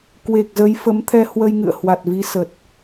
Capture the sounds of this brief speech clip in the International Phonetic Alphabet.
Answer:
k w e˨˩ k̚ z ə˨˦ j f ə˨˦ m t̪ʰ ɛ˧ h w ə˧ j ŋ ɨ̰˧˨ ə̯ h w a˨˩ t̚ v i˨˦ s ə˨˩ t̚

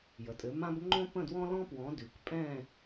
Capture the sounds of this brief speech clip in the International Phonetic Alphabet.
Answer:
j ə˨ tʼ ɘ˨˦ m ã˥ b ŋ͡ǃ õ˥ p ə̃˥˧ d w ɔ̃˥ l ɔ̃˥ p w ɔ̃˨˦ d ʉ˨ k pʼ ɛ̃˥˧

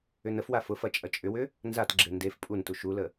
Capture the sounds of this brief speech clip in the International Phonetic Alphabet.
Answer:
ʏ n ə f w a f ʊ f ɐ t͡ʃʼ ɐ t͡ʃʼ ʏ w ʏ | n z a t ɡ͡ǁ e n d e f pʼ u n t u ʃ u l ə

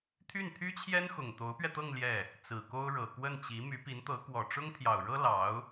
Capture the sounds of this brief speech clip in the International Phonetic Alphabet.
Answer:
t̪ʰ y˥˩ n t̪ʰ y˥ t͡ɕʰ j ɛ˥ n x ʊ˨˩ ŋ t̪ o˧˥ ʊ̯ p ɥ ɛ˧ t̪ ɤ˥˧ ŋ l j ɛ˥˩ | t͡s ɹ̩˨˩ k o˥ ʊ̯ ɻ ɤ˨˩ k w ə˥˩ n t͡ɕ i˧˥ m y˧˥ p i˧˥ n t̪ ɤ˧˥ k w ɔ˨˩ ʈ͡ʂ ʊ˥ ŋ t̪ʰ j ɑ˨˩ ʊ̯ ɻ ɤ˥ l ɑ˧˥ ʊ̯

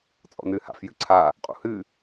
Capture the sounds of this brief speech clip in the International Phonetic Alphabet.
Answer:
t͡sʼ ɔ̰ n ɨː h a̰ f j ɨ ǀʰ a | qʼ ṵ h ɨ

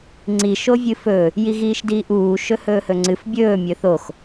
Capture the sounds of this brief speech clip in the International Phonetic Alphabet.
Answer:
ŋ͡ǀ i ʃ o vʲ ɨ f ɵ | j i ɣ iː ʃ d iː ʔ uː ʃ ɵ h ɵː h ɵ ŋ͡ǀ ɨ f bʲ ɵː mʲ ɵ θ o x

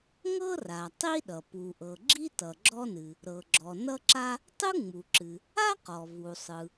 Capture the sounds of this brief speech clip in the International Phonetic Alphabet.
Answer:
ŋ ɤ˥ r a˩ tˤ i˥ ɗ ʌ˩ p u˩ ʔ ɤ˩ ɡ͡ǁ i˥ t ʌ˩ ɡ͡ǁ ɔ˥ n ɨ˩ | ɾ ɤ˩ ɡ͡ǁ ɔ˩ n ʌ˥ ǁ a˥ | tˤ ɯ˥ ŋ͡m u˩ ǁ ɨ˩ | a˥ q ɔ˩ v u˩ sˤ ɯ˩

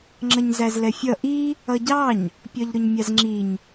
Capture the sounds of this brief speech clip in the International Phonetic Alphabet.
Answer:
ŋ͡ǁ ʌ ɲ z æ z l ɛ fʲ ʌ ʔ i | ʌ ɟ ɑ ɲ | pʲ ɒ ʎ ɾ ʊ ɲ mʲ ɑ z ŋ͡ǁ i ɲ

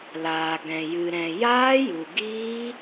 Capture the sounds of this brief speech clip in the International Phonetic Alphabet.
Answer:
l aː˨ ɡ ɛ̃˨ j ɨ˨ ɾ ɛ̃˨ j aː˦ j u˨ ɡ iː˦

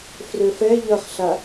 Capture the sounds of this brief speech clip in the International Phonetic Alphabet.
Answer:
f r ø f ɛ ʎ ʌ χ ɬ a

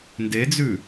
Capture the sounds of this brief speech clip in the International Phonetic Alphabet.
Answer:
n d e d͡z ʉ

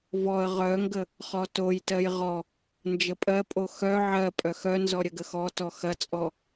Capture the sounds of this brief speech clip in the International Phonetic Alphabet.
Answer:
v ɔ ə̯ ʁ œ ŋ ɡ ə | χ ɔ t o j t ɜ j ʁ ɔ | n d͡ʒ ə pʼ ɜ pʼ o x œ ʕ ɜ pʼ œ x œ n z ɔ ɾʲ ə ɡ ə x ɔ t ɔ x ɐ t͡sʼ ɔ

